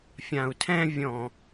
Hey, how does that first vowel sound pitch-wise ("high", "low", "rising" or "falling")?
low